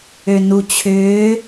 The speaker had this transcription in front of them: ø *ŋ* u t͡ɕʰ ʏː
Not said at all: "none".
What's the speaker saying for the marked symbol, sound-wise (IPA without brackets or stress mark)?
n